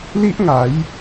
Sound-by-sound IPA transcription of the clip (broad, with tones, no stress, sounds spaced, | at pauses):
l i˦ ʔ ŋ a˨˦ j